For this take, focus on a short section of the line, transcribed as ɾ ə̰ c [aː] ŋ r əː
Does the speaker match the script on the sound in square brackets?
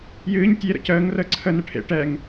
no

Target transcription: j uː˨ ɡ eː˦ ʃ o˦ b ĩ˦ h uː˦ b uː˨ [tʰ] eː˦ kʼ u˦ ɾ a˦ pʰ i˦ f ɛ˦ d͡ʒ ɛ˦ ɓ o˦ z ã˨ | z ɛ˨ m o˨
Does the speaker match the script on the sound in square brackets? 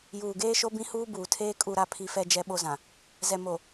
yes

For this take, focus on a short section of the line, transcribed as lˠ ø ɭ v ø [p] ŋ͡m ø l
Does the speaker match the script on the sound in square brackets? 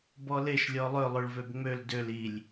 no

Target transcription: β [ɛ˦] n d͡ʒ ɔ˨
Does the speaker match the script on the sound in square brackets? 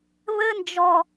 no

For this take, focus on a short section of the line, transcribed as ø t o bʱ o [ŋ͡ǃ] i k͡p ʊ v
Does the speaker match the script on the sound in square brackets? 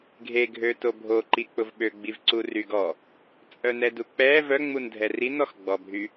no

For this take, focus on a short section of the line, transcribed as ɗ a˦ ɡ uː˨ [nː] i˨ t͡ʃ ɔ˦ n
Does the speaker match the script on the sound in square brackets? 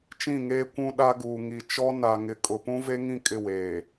no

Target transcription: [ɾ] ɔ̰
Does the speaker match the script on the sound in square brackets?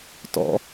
no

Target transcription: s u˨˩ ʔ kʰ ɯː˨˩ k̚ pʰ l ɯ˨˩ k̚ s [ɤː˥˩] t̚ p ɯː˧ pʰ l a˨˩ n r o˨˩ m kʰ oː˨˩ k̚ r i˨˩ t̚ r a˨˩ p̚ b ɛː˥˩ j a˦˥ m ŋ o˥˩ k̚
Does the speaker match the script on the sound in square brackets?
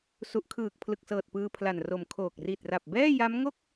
no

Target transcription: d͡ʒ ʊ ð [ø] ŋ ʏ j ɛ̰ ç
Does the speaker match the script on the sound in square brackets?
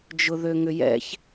yes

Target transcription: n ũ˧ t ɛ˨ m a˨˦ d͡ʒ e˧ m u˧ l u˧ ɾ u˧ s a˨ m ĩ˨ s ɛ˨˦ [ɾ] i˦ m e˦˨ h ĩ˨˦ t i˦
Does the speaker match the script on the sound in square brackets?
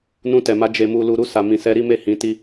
yes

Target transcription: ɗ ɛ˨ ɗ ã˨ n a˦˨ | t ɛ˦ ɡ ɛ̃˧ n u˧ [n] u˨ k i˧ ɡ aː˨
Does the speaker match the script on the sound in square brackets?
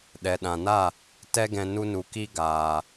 yes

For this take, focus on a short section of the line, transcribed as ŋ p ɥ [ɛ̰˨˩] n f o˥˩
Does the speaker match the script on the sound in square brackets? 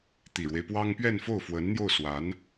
no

